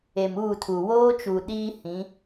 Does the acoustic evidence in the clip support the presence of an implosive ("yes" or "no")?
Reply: yes